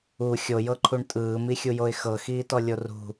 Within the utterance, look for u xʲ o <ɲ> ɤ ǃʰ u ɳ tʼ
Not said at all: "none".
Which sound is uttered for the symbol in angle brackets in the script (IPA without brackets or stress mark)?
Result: j